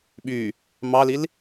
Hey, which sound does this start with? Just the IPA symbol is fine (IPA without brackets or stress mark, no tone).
ɓ